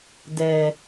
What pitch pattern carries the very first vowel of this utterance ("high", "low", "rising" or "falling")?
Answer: low